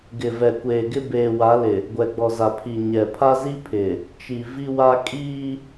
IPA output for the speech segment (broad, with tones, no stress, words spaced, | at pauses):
ɡɪ˨vɛ˨kʷeː˨ɡɪ˦ beː˨wa˨˦lɪ˨ | ɡʷɛ˨ɡ͡bɔ˨za˨pʰi˨ ɲɛ˨ pʰa˦zi˦pʰɪ˨ | t͡ʃi˨ vi˦wa˦ kʼiː˦